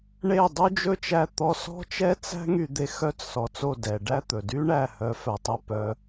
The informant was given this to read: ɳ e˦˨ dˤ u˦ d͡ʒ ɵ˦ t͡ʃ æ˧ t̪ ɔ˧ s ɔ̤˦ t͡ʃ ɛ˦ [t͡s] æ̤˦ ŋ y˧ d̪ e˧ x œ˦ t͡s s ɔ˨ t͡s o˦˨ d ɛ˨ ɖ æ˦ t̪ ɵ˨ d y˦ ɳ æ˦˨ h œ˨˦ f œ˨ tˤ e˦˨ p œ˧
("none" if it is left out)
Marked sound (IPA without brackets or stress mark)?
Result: t͡s